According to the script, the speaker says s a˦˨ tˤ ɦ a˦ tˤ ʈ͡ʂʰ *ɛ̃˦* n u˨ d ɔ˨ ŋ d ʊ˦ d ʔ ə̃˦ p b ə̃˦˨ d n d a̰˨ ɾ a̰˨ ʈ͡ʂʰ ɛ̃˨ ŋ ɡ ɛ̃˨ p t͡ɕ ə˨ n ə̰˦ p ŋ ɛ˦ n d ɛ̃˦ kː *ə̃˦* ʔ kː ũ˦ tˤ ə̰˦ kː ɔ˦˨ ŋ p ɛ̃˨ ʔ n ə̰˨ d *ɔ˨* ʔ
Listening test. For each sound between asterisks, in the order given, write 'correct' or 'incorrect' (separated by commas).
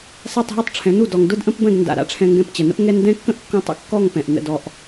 incorrect, correct, correct